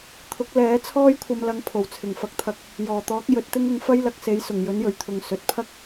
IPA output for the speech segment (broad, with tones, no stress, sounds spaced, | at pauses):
t̪ʰ ʊ˨˥ k̚ l ɛː˨˥ t͡sʰ ɔː˥ j kʷʰ ɐ˧ m l ɐ˨˥ ŋ pʰ o˨˩ w t͡sʰ ɪ˨˩ ŋ f ɐ˧ k̚ t̪ʰ ɐ˧ k̚ | j ɔː˨˩ t̪ ɔː˨˥ k̚ j ɵ˨˥ t̚ t̪ ɪ˥ ŋ ʊ˧ ŋ f ɐ˥ j l ɐ˧ k̚ s e˨˥ j s ʊ˨˩ ŋ j ɵ˨˥ n j ɵ˨˩ ɥ t̪ʰ ʊ˨ ŋ s ɵ˨ t̚ pʰ ɐ˥ k̚